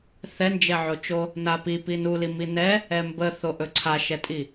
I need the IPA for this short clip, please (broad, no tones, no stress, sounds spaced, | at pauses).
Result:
θ ɛ n d͡ʒ ɛ ʕ o t͡ʃ o | n a p i p i n u l i m i n ɛ | ɛ m b ə θ o ʔ ɵ ǀʰ a ʃ ɛ tʼ i